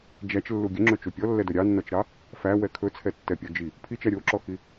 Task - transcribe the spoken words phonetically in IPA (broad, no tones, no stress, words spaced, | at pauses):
d͡ʒæt͡ʃlːu ɡʲɵŋ͡ǁɵt͡ʃu pʲɔlːɛdɵ ɾʲɑnːɔt͡ʃɾɑ | fæwɛ kʰɵt͡sʰɛtːɛpʲɔ d͡ʒi | pʰit͡ʃæ ɾʲoǁɔxi